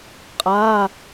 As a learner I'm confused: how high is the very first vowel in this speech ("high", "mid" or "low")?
low